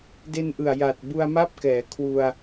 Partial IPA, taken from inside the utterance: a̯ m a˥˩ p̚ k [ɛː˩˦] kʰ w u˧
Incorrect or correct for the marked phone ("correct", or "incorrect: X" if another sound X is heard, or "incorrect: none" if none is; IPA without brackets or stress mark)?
correct